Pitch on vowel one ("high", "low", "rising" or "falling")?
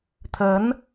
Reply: rising